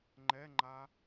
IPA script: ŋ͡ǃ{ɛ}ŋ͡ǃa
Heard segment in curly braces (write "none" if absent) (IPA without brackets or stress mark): ɛ